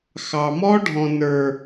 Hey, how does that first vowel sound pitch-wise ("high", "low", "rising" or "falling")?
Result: low